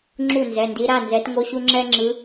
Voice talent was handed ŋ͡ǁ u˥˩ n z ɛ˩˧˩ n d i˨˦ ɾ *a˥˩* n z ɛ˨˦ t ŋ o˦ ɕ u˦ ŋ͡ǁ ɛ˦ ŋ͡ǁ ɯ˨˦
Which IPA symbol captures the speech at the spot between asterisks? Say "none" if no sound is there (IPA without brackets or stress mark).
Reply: a˩˧˩